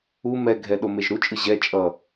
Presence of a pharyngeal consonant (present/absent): absent